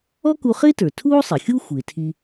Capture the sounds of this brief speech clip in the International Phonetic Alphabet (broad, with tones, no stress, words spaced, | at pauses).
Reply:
ɔ˥ku˧χɪː˥tə˞˩ tʰuː˥sˤɪ˩xʲu˥ xʷɪː˩tʰi˧